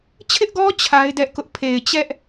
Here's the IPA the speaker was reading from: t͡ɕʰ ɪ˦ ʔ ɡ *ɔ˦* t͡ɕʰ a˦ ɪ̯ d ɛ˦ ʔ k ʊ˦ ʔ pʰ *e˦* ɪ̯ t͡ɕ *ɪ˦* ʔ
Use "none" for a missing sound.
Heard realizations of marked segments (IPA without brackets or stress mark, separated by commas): ɔ˦, e˨, ɛ˦